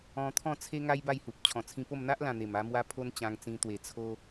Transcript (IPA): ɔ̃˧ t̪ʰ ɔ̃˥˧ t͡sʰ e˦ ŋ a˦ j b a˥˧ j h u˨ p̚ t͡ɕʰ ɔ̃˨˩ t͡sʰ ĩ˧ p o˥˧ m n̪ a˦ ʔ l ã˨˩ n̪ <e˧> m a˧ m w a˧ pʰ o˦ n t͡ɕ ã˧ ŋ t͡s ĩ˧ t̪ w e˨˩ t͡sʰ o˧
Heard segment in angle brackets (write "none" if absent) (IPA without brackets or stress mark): e˨˩